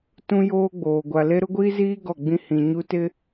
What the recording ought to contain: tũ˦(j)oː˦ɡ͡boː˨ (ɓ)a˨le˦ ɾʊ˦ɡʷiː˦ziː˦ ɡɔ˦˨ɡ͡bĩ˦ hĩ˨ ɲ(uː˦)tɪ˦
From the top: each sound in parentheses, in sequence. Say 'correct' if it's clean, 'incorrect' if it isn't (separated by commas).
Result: correct, incorrect, incorrect